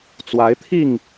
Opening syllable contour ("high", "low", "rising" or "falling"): rising